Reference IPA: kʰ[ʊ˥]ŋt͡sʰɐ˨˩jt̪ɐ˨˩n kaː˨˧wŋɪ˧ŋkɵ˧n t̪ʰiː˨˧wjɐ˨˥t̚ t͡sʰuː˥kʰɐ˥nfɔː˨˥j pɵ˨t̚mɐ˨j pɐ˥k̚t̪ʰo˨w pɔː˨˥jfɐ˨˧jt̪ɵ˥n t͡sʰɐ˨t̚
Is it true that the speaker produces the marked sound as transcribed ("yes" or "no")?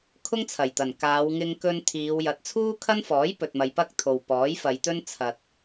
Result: yes